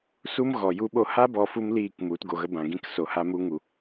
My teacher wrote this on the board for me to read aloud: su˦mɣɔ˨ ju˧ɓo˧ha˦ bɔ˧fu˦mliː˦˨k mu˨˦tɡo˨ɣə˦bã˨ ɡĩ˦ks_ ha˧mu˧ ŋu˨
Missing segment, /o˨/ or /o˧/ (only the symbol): o˨